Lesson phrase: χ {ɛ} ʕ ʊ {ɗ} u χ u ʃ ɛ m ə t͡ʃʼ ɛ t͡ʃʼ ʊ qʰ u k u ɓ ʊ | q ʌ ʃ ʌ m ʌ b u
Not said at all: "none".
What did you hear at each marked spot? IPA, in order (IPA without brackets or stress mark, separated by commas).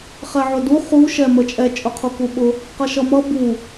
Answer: ɛ, d